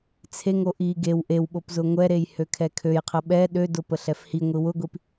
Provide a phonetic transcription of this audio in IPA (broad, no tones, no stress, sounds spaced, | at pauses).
t͡sʰ e ŋ o ʔ i ɡ e w ʔ e w ɓ o p z ʊ ŋʷ ɛ ɾ e j h ø kʰ ɛ kʰ ø j qʰ ə ɓ ɛ ɗ ø d ʊ p ə ɬ ɛ f h i ŋʷ i w ʊ ɡʷ i p